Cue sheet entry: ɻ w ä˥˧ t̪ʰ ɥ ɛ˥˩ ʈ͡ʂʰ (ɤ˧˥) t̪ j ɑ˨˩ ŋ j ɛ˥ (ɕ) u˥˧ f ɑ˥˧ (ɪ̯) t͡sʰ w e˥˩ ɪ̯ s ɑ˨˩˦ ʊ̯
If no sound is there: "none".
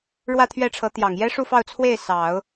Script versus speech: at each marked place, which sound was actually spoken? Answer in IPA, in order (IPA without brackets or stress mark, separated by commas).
ɤ˧˥, ʂ, ʊ̯